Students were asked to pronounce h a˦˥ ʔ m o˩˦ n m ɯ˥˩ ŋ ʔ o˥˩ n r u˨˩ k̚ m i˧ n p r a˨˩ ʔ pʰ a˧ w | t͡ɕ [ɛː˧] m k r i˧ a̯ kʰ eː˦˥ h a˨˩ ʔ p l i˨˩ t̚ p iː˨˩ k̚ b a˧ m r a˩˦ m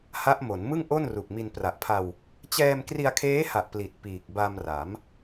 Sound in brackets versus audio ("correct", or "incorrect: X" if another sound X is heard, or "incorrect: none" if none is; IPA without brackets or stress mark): correct